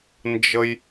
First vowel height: mid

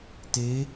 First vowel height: mid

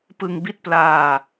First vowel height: high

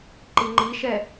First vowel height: high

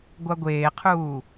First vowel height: low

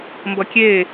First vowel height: mid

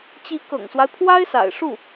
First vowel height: high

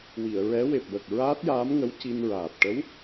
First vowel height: high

